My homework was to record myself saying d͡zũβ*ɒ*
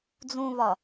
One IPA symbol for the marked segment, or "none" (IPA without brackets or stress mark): ɒ